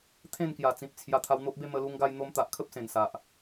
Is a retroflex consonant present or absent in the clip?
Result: absent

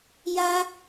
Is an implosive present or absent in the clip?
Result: absent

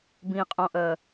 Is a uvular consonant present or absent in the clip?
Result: present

